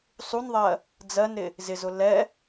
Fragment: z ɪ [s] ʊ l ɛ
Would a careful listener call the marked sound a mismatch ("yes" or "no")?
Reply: yes